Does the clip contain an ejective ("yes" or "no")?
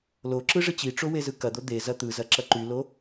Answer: no